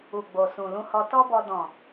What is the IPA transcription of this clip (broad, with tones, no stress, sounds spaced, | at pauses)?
u˨ ɡ͡b o˨ s ũ˨ l ũ˧ h ɔ˧ t ɔ˦ b ɔ˧ d ɔ̃˨